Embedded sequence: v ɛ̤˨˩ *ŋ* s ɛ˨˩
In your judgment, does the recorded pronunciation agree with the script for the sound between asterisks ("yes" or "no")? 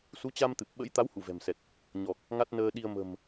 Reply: no